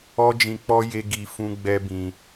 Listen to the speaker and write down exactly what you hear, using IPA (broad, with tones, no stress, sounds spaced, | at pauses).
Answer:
ɔ˦ d͡ʒ ĩ˧ k͡p ɔ˦ j e˦ ɡ i˧ f ũ˦ ɡ͡b ɛ˦ b ĩ˧